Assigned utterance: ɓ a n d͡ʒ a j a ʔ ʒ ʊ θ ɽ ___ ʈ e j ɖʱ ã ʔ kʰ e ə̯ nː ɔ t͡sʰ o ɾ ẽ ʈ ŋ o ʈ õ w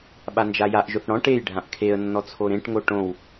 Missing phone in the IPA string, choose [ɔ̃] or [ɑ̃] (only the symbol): ɔ̃